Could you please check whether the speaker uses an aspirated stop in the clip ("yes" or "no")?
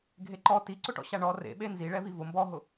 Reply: no